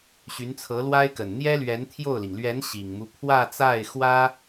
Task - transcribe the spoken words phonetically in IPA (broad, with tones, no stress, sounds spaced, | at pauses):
ɕ y˧˥ n t͡sʰ ɤ˧˥ l w a˥ ɪ̯ k ə˨˩ n n̪ j ɛ˥ l ɥ ɛ˧˥ n t̪ʰ j o˥˩ ʊ̯ l i˩ ŋ l ɥ ɛ˧˥ n ɕ i˨˩ ŋ m u˦ pʰ w ä˥˧ t͡s a˥˩ ɪ̯ x w ä˥